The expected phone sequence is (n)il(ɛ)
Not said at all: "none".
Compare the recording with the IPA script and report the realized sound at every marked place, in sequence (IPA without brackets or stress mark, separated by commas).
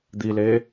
d̪, e